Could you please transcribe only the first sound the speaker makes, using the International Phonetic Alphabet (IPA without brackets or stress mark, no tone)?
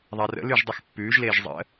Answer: ðˤ